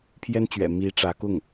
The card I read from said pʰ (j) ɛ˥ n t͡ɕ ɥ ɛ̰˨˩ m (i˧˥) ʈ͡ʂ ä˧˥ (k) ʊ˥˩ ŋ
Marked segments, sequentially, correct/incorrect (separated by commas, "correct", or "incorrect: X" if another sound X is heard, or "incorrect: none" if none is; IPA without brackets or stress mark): correct, correct, correct